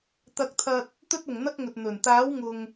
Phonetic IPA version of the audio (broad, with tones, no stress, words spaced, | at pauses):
t̪ɐ˧k̚t̪ʰɐ˧t̚ | t̪ɵ˥t̚ʊ˨ŋn̪ɐ˥k̚ŋɵ˨t̚ n̪ɵ˨˩n t̪aː˨˥wŋʊ˨ŋ